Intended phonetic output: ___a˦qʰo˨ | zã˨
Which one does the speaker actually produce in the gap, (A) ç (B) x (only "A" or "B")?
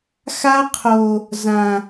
B